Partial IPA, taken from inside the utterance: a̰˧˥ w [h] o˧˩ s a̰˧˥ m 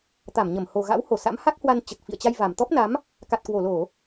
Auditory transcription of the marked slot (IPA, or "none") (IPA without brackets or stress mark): h